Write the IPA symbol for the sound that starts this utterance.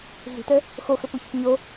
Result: ɮ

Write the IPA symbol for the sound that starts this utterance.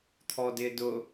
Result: t̪ʰ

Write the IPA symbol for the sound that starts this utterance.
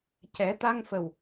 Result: c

